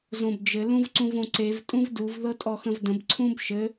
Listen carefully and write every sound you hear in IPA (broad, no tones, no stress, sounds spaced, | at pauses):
z õ b d͡ʒ ɘ l ũ v ǀ ũ v õ ǀ e v tʼ ũ v d u v ð ɤ tʼ ɔ x ə̃ v d ə̃ b ǀʰ ũ b ʃ ɘ